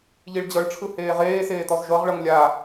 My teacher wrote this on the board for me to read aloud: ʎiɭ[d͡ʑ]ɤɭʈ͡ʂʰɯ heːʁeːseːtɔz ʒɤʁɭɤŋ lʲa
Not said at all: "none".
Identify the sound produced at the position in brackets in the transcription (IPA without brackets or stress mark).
d͡ʑ